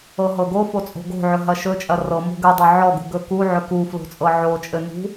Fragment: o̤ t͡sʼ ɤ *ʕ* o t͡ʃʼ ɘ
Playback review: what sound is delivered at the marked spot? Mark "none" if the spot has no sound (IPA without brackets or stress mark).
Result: ʕ